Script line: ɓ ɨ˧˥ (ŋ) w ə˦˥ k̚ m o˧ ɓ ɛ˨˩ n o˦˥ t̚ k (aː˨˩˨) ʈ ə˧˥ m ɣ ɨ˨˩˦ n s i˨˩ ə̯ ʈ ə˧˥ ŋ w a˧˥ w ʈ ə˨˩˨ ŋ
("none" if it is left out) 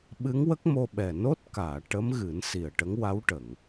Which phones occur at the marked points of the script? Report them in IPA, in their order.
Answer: ŋ, aː˨˩˨

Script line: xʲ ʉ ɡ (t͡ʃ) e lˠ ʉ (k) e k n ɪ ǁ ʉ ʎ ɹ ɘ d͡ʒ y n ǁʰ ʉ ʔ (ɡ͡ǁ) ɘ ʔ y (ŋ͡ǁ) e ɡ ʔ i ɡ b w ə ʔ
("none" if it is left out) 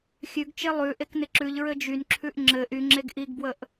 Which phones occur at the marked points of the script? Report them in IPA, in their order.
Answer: t͡ʃ, ʔ, ŋ͡ǁ, ŋ͡ǁ

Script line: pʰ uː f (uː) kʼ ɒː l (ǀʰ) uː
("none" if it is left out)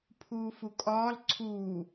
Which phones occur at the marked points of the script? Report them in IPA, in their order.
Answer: u, ǀʰ

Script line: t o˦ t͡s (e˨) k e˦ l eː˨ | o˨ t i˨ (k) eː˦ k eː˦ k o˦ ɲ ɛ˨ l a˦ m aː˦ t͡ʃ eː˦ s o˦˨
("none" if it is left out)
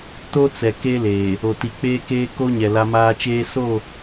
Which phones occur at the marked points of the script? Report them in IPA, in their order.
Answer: ɛ˨, k͡p

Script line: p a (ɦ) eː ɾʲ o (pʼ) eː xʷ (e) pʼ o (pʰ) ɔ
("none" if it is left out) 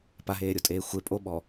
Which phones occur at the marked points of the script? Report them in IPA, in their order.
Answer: ɦ, tʼ, e, ɓ

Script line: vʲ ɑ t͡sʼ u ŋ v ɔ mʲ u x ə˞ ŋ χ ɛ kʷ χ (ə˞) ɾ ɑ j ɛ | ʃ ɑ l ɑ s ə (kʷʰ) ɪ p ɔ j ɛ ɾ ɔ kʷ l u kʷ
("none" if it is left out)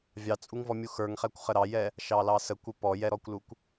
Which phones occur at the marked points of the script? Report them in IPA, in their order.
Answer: ə, kʷ

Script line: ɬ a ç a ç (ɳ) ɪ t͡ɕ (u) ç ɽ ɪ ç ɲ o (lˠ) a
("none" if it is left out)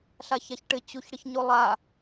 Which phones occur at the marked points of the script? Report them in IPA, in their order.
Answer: ʈ, u, lˠ

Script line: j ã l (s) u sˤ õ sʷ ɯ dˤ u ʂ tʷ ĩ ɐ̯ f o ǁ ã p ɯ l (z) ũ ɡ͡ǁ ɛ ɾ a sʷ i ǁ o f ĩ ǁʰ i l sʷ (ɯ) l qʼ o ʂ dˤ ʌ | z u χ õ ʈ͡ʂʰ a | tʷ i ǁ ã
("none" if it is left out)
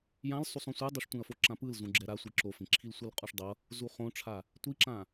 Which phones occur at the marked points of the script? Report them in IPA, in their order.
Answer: sˤ, z, ɯ

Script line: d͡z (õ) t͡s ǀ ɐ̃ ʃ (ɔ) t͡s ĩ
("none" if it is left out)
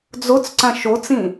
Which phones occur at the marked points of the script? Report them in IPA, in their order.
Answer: o, o

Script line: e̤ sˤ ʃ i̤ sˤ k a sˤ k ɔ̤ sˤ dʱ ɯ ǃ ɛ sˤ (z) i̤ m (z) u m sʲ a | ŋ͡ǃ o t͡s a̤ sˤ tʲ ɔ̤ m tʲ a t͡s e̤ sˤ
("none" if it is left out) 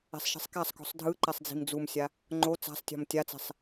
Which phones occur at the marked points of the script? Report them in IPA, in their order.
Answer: d͡z, d͡z

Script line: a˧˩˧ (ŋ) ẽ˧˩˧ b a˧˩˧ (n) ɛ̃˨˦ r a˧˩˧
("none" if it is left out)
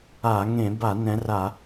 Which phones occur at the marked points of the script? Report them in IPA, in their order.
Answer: ŋ, n

